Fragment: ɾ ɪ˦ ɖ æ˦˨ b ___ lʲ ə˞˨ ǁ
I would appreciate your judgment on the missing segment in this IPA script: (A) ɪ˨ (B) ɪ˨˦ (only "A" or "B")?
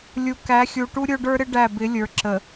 B